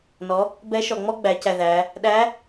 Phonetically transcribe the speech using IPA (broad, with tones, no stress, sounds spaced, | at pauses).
n ɔ˩˧ | b ɛ˧˥ ʃ ɔ˩ ŋ͡m ɔ˥ ɡ͡b æ˩˧ c æ˩ ð æ˩˧ | ɗ æ˧˥